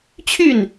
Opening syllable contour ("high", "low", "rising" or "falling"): falling